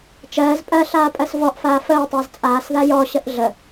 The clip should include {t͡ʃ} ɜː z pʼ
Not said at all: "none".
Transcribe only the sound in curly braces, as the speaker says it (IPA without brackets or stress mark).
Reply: t͡ʃ